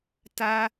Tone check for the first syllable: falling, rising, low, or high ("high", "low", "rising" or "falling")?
high